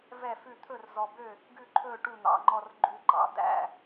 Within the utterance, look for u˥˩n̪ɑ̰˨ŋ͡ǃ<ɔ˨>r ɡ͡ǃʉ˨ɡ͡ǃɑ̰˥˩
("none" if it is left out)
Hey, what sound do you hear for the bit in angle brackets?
ɔ˥˩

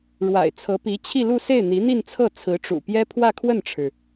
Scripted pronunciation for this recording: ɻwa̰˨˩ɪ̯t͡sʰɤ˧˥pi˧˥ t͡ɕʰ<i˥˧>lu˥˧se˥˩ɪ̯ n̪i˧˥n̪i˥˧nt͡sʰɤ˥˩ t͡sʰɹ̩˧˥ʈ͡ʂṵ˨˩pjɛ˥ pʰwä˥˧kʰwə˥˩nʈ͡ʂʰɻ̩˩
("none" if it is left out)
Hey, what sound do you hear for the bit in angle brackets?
i˥˧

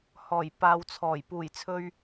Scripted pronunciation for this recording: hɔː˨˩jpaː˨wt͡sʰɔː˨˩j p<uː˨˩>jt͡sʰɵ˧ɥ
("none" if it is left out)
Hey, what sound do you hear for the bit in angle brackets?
uː˨˩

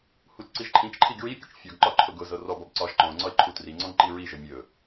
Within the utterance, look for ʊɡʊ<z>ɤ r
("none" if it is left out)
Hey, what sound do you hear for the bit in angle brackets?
z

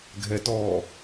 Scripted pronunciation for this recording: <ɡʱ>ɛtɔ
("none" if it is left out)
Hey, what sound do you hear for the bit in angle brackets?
ɡʱ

